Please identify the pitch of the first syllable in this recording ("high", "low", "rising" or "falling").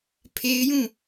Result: high